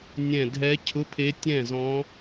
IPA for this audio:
nʲ ɛ̃˧˩ dʱ ɛ˧˥ cʰ ʊ˧˥˧ pʰ e˧˥ tʲ ɛ̃˥˩ z ɔ̃˧˥

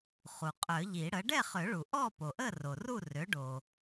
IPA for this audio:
χ u˩ qʼ œ˨˩˦ ʎ i˨˩˦ ɽ ə˩˥ ɖ ɛ˥˨ χ ø˨˩˦ ɭ u˩ ʔ ɔ˥˨ p o˩ ʔ ə˥˨ r o˩ r u˥˨ r ø˩˥ ɖ o˩

